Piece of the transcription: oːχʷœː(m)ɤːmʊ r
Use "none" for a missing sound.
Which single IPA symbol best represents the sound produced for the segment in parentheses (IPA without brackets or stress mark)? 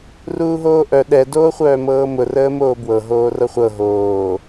m